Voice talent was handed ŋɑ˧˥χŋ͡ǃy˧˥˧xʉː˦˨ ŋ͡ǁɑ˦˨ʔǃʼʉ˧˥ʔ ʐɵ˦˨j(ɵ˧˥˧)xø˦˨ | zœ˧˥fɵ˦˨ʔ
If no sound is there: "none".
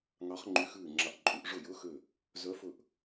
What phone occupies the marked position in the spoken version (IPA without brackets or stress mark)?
ɵ˧˥˧